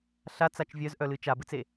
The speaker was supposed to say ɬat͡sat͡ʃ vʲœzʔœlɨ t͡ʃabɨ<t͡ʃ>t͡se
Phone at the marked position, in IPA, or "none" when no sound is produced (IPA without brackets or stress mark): none